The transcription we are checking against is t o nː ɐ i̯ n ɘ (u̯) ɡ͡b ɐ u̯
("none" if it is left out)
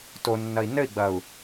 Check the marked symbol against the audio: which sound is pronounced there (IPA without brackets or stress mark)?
i̯